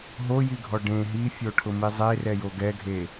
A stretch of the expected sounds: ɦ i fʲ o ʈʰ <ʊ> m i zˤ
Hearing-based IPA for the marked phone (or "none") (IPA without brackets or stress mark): ʊ